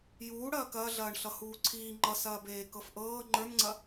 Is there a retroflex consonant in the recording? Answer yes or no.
yes